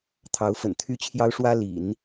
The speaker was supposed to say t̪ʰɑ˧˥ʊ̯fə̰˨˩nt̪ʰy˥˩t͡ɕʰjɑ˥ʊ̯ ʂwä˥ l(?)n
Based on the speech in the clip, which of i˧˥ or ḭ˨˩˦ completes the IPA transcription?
ḭ˨˩˦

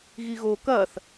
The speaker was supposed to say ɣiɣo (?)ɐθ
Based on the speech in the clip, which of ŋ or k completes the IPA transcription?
k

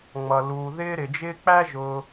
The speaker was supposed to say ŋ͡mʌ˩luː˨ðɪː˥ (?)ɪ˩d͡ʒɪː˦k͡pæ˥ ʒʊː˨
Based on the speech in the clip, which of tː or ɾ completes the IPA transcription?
ɾ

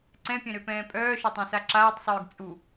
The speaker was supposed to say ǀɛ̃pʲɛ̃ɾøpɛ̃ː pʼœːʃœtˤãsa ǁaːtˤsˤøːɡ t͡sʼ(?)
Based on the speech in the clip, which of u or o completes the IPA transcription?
u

